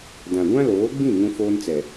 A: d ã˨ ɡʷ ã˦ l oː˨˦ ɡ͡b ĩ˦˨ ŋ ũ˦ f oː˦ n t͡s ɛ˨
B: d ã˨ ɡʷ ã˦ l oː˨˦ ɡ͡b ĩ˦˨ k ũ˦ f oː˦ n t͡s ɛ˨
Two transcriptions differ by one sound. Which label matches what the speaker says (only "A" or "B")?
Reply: A